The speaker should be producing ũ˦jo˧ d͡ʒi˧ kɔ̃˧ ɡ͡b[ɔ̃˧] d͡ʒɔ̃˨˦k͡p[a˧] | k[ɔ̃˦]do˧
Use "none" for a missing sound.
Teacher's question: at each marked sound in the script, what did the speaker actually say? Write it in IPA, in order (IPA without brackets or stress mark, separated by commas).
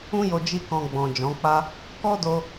ɔ̃˨, a˦, ɔ˦